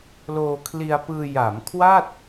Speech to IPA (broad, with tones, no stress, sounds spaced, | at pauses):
l oː˧ kʰ l i˧ a̯ p ɯː˧ j a˩˦ m kʰ w a˥˩ t̚